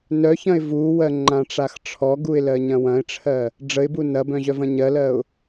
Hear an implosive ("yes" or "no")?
no